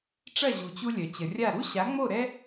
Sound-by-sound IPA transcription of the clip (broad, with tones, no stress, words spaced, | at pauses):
ʈ͡ʂɐ˥˩ʑu˩t͡ɕu˧ lʲœ˩t͡ɕə˩rʲa˥˩ ɾu˥ɕa˩˥ŋ͡mo˥˩ ɾɛ˥